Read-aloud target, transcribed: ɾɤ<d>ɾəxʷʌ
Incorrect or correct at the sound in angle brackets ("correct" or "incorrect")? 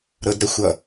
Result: correct